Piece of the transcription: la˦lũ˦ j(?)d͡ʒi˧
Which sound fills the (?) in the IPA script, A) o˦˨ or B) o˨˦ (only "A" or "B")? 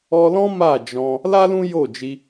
A